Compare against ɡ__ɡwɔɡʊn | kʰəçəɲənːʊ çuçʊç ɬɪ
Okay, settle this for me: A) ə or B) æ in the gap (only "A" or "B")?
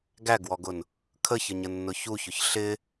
B